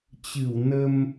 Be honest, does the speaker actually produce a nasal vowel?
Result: no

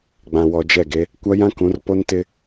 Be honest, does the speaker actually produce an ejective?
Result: no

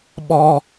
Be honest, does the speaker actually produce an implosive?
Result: yes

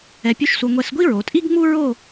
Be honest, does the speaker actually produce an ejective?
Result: yes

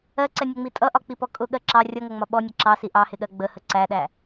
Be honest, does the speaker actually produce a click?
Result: yes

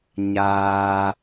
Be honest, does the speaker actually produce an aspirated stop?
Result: no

